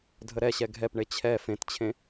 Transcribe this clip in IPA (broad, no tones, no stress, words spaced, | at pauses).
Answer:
dʱəɾɛɕɛ ɡʱɛpɳe t͡ɕʰɛ fẽtt͡ɕʰẽ